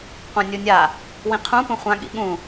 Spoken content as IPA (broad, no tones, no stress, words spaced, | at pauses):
qʷãnʲunʲa | wĩqʰũ pũχʷã ɠḭɠũ